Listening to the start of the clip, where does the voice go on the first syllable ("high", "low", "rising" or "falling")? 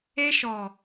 high